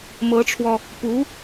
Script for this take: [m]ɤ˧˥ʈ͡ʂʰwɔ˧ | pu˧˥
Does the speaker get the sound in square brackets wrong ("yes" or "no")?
no